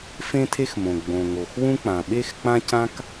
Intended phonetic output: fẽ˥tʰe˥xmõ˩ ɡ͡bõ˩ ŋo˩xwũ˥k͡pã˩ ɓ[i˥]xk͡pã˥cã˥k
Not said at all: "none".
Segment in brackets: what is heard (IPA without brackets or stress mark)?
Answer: e˥